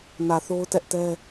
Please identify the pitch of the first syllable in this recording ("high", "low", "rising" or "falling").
low